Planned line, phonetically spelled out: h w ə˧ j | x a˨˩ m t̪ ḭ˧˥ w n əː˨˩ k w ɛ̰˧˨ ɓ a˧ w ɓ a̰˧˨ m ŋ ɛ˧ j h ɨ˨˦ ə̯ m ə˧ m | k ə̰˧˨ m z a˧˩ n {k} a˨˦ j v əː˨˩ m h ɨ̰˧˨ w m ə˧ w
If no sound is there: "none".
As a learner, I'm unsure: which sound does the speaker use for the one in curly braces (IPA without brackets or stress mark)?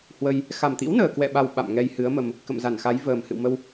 x